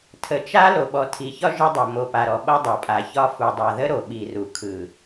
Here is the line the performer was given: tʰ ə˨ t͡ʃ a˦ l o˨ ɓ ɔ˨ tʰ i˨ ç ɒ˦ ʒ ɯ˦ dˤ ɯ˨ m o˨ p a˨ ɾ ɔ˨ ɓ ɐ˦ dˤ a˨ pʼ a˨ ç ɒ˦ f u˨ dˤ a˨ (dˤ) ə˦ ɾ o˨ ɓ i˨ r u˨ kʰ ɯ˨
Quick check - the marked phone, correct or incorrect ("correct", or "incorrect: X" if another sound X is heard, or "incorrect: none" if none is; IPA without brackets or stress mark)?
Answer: incorrect: ð